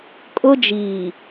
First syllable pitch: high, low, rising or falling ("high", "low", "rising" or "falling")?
high